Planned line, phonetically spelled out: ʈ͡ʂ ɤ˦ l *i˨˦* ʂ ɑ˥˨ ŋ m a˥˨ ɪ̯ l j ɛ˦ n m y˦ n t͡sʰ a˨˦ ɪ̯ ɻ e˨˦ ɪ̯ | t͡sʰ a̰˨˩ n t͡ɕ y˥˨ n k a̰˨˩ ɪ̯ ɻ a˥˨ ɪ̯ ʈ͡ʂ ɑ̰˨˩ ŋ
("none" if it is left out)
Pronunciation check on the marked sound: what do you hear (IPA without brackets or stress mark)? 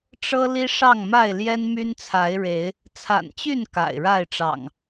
i˦